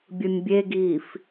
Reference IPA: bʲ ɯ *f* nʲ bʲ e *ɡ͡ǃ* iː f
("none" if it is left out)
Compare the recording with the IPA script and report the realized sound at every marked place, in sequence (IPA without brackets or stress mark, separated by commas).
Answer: none, ɡ